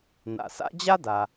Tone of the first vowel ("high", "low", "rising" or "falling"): low